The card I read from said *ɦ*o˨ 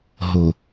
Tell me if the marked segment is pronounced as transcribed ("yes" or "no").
yes